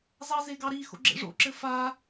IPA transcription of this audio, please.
zɑzeɡɑɾi xo̰ɡ͡ǁḛʐo̰ ǁɘfa

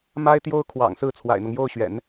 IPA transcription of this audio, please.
ma˥ɪ̯t̪jo˥ʊ̯ kʰwɑ̰˨˩ŋsɹ̩˥˩ t͡sʰwa̰˨˩ɪ̯n̪ɤ˦ŋjo˥˩ʊ̯ɕɥɛ̰˨˩˦n

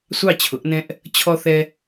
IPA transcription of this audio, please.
sʷɑ˥˩t͡ɕʰʊ˩˥ʔnɛ̃˦ʔ | t͡ɕʰɔ˦θɛ˦

